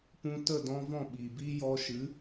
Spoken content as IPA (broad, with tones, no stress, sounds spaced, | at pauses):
p ũ˧ t ə˦˨ d ɔ̃˧ v ɔ̃˦˨ ɓ iː˨ b iː˦ j ɔ˧ ʃ ɨ˨˦